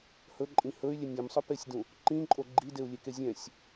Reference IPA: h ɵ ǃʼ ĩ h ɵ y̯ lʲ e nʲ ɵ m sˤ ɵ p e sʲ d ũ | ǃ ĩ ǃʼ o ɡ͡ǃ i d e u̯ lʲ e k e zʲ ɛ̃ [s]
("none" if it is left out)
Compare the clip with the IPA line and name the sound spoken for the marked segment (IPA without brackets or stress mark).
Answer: sʲ